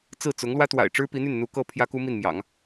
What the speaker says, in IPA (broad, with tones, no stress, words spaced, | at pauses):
t͡sɹ̩˥˩t͡sʊ˧˥ŋlwä˥t̪wa̰˨˩ɪ̯ ʈ͡ʂɻ̩˥pi˧˥n̪y˥˩nn̪u˧˥ kɤ˥ pʰjä˥ku˥mi˥˩n mjɑ̰˨˩˦ŋ